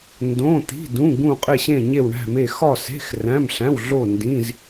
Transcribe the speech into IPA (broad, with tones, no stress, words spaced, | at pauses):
ndõ˧˥˧t̪i̤˧˥˧dũ˧˥˧ ɡũ˥˧qʼe˥˧ɕẽ˥˧ ɲe˥˧wɳæ̤˥˧me˥˧ xɒ˥˧se̤˧˥˧x ræ̃˧˥˧mɬæ̃˧˥˧wɮo˥˧ ndĩ˧˥˧z